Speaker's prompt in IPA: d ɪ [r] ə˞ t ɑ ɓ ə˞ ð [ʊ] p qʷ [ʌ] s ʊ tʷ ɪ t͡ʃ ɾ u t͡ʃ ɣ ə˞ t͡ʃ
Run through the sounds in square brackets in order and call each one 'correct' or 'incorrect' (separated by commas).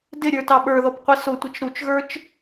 incorrect, incorrect, incorrect